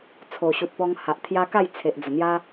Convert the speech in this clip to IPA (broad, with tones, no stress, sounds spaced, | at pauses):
t͡sʰ o˨˩ ɕ u˨ t̚ p ɔ˧ ŋ h a˨ ʔ t̪ʰ j a˧ k a˥˧ j t͡sʰ e˨ ʔ d͡z ə˨˩ n̪ j a˦